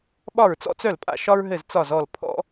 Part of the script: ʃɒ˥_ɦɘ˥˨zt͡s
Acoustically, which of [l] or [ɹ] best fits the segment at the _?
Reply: ɹ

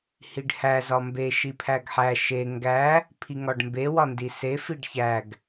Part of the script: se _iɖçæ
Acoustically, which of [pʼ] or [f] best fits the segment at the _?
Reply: f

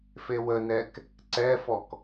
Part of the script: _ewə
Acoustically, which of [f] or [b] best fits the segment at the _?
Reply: f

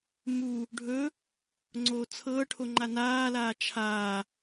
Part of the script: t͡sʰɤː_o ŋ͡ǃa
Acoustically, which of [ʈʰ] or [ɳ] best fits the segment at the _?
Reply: ʈʰ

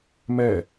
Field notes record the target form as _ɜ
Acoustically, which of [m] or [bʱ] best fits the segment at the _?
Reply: m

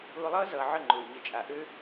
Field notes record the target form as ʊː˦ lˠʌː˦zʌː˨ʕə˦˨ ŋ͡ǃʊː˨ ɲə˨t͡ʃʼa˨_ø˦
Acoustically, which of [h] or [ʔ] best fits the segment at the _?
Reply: ʔ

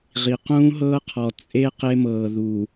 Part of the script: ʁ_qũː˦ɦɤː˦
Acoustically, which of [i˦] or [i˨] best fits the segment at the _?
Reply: i˨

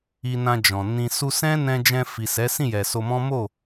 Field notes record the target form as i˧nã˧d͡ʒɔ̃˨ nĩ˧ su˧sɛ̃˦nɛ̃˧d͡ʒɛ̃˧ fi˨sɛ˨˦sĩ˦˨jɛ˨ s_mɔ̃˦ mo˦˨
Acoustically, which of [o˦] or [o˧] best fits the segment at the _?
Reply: o˧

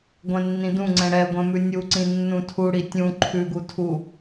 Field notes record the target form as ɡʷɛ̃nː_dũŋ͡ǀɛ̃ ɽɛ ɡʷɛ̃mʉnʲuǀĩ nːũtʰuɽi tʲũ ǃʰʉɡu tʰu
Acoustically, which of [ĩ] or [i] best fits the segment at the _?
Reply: ĩ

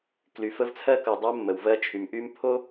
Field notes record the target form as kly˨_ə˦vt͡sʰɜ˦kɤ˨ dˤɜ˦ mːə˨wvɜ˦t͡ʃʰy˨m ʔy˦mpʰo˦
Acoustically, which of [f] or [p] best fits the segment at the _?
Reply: f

